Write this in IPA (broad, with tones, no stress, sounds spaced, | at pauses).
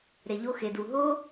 ɾ e˨ ʎ o˧ x e˨ d u˨ ɦ o˦